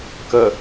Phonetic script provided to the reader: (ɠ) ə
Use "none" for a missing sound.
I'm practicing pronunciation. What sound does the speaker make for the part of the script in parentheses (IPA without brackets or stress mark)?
k